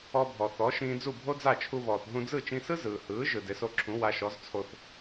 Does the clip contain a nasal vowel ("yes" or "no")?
yes